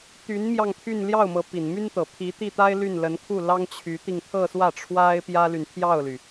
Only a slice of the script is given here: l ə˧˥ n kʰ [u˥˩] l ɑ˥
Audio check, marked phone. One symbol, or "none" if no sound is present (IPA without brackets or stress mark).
u˥˩